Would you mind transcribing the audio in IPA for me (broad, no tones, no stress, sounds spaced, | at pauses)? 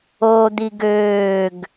o d̪ i ɡ øː ɡ